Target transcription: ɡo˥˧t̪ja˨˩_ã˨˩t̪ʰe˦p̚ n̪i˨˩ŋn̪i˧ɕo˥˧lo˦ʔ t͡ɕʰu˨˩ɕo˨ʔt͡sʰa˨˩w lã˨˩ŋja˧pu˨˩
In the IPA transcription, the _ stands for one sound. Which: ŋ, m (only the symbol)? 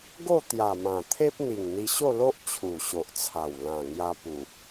m